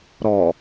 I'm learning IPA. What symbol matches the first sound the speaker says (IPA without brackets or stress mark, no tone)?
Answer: ɾ